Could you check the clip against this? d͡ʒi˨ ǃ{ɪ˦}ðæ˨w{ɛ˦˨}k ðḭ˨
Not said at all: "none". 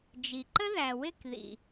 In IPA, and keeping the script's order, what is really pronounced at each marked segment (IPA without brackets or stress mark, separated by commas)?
ə˦, ɪ˦˨